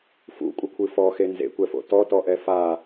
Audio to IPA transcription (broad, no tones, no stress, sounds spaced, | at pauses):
f ṵ kʷʼ ɘ kʷʰ ɨ f ɔ x e n z ḛ kʷ ɛ f o̰ t ɔ t ɔ ʔ ɛ f a